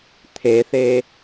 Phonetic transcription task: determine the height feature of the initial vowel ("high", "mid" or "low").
mid